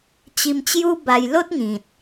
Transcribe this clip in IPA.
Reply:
t͡ɕ i˧ m t͡ɕ j u˦ b a˧ j l o˦ t̚ ŋ ĩ˨ t̚

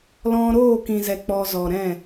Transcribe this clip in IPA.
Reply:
l ɔ̃˧ ɾ oː˦˨ k ĩ˨ z ɛ˨ k͡p ɔ˧ z ɔ˨ ɾ ɛ̃˦˨

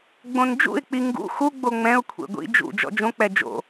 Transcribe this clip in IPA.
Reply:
ɡ͡b õ n d͡ʒ ṵ ɪ̯ k͡p i ŋ ɡ ṵ x u ɡ͡b o ŋ͡m ɛ̃ ʊ̯ kʷʰ ḛ ɡʷ ḭ d͡ʒ ṵ d͡ʒ ɔ̰ d͡ʒ õ k͡p ɛ d͡ʒ o̰

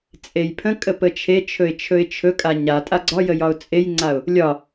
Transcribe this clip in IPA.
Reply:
t͡sʼ e j pʰ ə̃ kʼ ə p ə t͡ʃʰ e t͡ʃʰ ɵ ɪ̯ t͡ʃʰ ɵ ɪ̯ t͡ʃʰ ɵ kʼ a ɲ a tʼ a ɡ͡ǀ ɒ j ə j ɒ ʊ̯ t͡sʼ e j ŋ͡ǀ a ʊ̯ | lʲ ɒ

